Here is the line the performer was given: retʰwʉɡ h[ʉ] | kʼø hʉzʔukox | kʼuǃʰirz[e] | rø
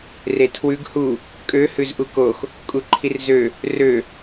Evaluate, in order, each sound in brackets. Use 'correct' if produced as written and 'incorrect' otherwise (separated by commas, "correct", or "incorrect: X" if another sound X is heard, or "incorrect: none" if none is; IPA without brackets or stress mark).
incorrect: u, incorrect: ø